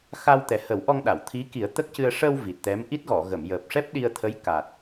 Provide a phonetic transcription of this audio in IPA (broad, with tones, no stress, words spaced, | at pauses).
xa˧w t̪ɛ˨˩hə˨˩˦wʔɔ˧ŋɗa˨˩˨w t̪ʰi˧˥ki˨˩˦ə̯ t̪ə˦˥k̚cɨ˧ə̯ ʂə˧w vi˨˩t̚t̪ɛ˧˥m ʔi˦˥t̚ɣɔ˨˩˨ɣə˨˩˨m jəː˨˩p̚ʂɛ˦˥p̚ ɗi˧ə̯t̪ʰə˧˥j ka˨˩t̚